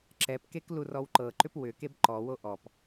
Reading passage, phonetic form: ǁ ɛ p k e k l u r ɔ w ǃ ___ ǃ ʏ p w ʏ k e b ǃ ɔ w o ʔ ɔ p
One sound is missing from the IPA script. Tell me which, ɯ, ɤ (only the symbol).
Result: ɤ